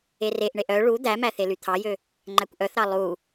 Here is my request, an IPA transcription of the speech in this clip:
e r e ʔ ɳ e ʔ œ ɭ u d̪ æ m æ θ e l y t̪ʰ ɑ j ø | ŋ͡ǃ æ kʷ ʔ œ θ ɾ ɑ lˠ u

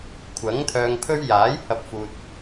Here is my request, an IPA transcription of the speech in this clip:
kʷʰ ɐ˨˥ ŋ t̪ʰ œː˧ ŋ pʰ ɵ˥ ɥ j aː˨˥ j h ɐ˧ p̚ f uː˧ t̚

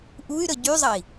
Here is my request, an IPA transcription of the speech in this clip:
ʔ u y̯ ɾ ə ɟ y zˤ ɐ i̯

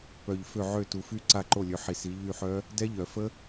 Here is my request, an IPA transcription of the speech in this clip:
p œ˨˩ ʎ f ø˦˨ ʕ ø˦˨ t u˨˩ f y˦˥ ǀ a˦˨ ǃ o˦˨ lʲ ø˨˦ ħ i˨˩˦ s i˨˦ ʎ y˦˨ ħ œ˦˥ | d ɛ˦˥ ʎ œ˨˩˦ f ə˦˥

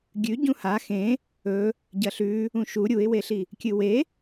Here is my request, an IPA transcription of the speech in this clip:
ɡʲ ʉ ɟ ũ h a x ẽ | ɵ | ɟ ɐ ɬ ʉ | ũ ʃ u ɾʲ u ɪ̯ w e ɬ i | kʲ ɨ w e

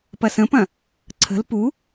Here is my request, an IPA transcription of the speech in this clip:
p ɐ s ə̃ p ɐ̃ | ǀʰ ə̤ l p u

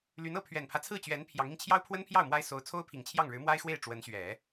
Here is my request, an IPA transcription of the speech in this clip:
l y˧˥ n ɤ˥˩ pʰ ɥ ɛ˨˩ n pʰ ä˦ t͡sʰ ɹ̩˥˩ t͡ɕ ɥ ɛ˧˥ n pʰ j ɑ˧˥ ŋ i˧ ŋ t͡ɕʰ j ɑ˥ ʊ̯ pʰ w ə˥ n pʰ j ɑ˥˩ ʊ̯ m w a˥ ɪ̯ s o˧˥ ʊ̯ t͡sʰ o˥ ʊ̯ pʰ i˨˩ ŋ t͡ɕʰ j ɑ˥˩ ŋ ɻ ɻ̩˧˥ m w a˥ ɪ̯ x w e˥˩ ɪ̯ ʈ͡ʂ w ə˧˥ n ɕ ɥ ɛ˨˩˦

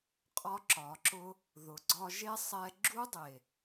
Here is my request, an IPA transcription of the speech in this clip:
qʼ ɒ˧ ǁ ɒ˨ ǁ ʊ˧ | ð ʊ˨ ɡ͡ǀ ɒ˧ ʒ e˦ sˤ ɛ˦ ɡ͡ǁ u˦ dˤ e˨

